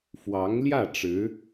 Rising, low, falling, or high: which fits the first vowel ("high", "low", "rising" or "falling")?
rising